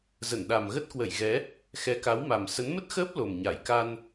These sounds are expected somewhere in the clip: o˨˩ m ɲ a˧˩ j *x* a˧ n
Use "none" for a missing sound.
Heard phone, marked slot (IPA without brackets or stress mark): k